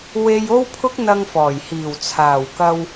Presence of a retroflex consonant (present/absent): absent